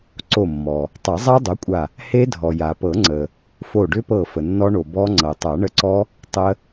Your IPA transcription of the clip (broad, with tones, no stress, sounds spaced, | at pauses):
ǀ o˧˩ mː ɔ˩ | tˤ a˨˩˦ zˤ a˦˥ dˤ o˩˥ kʷʼ a˧˩ | h e˦˥ dʱ ɔ˩ j a˩ p ɤ˨˩˦ ŋ͡ǀ ə˩ | f o˧˩ ɖ ʏ˦˥ p ɤ˧˩ f ə˩ nː ɔ˦˥ ɳ o˩ b ɔ˦˥ ŋ͡ǀ ɤ˩ tˤ a˨˩˦ ɳ ə˧ ǀ ɔ˦˥ | tˤ ə˦˥